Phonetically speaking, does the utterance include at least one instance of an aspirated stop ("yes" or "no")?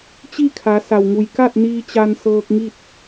yes